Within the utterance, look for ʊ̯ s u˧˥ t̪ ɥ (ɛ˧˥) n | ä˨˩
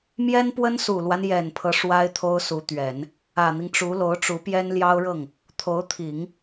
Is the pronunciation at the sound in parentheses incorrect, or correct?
incorrect: ɛ˨˩˦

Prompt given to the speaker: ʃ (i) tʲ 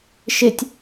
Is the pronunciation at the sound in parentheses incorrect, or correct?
incorrect: ɪ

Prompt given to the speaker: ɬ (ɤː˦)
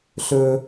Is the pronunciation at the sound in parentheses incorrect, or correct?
incorrect: ɵː˦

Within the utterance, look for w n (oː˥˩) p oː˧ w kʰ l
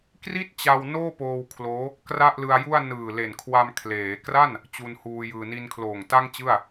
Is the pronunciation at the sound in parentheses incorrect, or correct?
correct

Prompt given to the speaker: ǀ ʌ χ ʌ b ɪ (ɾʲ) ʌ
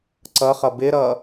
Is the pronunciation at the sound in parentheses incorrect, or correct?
incorrect: ɾ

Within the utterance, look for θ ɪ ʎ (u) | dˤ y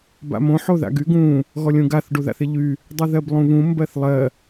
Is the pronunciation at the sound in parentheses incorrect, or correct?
incorrect: y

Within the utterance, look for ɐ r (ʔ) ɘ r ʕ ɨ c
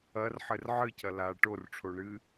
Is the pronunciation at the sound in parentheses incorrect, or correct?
incorrect: ħ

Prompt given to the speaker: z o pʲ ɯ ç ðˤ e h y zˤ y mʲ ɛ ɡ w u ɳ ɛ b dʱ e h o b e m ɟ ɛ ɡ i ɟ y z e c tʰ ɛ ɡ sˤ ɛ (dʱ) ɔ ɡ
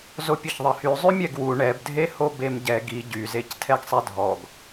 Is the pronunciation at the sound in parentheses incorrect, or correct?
correct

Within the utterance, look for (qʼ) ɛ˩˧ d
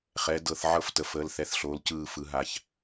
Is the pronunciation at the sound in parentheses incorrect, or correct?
incorrect: χ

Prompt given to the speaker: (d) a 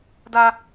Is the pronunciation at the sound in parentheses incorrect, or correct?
correct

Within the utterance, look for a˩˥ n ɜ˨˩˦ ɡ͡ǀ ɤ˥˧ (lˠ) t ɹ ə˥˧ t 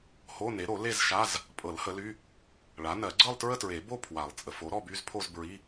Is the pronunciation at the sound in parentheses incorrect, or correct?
correct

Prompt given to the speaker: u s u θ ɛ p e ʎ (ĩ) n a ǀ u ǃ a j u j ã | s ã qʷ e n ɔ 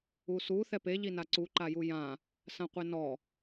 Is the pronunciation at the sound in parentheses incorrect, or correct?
incorrect: i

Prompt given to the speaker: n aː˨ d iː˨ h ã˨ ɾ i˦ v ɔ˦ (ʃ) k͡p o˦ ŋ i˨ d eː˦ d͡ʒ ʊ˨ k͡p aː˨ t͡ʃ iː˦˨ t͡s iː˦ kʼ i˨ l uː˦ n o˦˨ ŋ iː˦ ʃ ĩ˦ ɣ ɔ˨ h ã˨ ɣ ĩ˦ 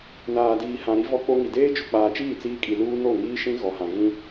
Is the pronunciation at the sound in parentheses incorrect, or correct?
incorrect: none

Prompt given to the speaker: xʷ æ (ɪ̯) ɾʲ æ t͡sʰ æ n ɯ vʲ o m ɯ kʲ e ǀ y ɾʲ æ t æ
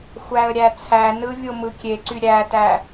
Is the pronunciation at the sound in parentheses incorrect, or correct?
incorrect: ə̯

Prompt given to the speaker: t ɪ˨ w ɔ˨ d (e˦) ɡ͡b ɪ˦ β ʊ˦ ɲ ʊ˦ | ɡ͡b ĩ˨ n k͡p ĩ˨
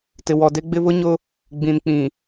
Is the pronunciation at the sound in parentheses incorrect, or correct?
correct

